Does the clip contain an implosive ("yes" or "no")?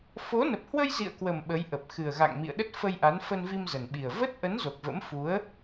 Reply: yes